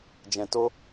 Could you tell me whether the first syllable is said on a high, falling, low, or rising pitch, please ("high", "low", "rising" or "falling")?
low